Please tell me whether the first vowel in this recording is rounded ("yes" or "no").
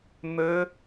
no